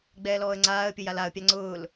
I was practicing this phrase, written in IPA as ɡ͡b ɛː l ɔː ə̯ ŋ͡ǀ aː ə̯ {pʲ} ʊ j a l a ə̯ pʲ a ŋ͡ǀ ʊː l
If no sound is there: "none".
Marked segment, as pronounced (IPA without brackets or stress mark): pʲ